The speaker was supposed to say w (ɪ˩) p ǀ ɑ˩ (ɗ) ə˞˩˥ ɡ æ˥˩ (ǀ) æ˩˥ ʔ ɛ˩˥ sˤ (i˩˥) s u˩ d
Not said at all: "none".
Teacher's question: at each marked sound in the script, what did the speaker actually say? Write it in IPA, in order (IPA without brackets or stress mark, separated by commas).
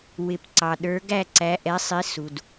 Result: ɪ˩, ɗ, ǀ, i˩˥